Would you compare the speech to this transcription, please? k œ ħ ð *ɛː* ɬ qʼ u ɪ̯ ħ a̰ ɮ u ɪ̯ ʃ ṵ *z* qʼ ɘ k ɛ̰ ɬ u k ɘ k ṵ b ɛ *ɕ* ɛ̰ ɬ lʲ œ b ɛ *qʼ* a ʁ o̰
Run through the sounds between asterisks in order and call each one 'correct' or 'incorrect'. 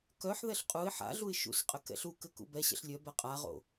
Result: incorrect: ɛ, incorrect: s, correct, correct

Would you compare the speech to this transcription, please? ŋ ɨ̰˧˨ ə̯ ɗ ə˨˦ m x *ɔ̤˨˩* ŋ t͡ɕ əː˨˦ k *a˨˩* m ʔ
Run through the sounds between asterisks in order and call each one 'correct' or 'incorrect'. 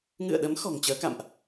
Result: correct, incorrect: a̰˧˨

